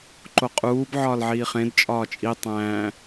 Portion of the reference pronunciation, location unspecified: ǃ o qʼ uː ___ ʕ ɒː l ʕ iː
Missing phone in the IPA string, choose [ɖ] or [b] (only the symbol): b